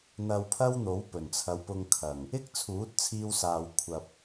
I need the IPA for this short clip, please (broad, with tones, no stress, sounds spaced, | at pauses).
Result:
n̪ ɐ˧ w pʰ ɐ˥ w n̪ o˨˥ w p ɵ˨˩ n t͡sʰ ɐ˨˧ w p ʊ˧ ŋ kʰ ɐ˨˩ ŋ | ɪ˥ k̚ t͡sʰ uː˨˥ t̚ t͡sʰ iː˧ w s aː˨ w kʷʰ ɐ˧ p̚